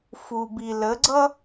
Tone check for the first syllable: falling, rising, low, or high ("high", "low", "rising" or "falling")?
low